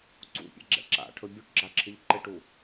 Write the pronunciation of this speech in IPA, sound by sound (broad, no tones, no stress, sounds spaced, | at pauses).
ǀ ṵ pʲ ɛ̰ ɡ͡ǁ ɛ̰ ǁ a̰ ʈʰ ɵ bʲ u ʈ ɡ͡ǁ a ǁʰ ɪ ʎ ǃ ɪ ʈ u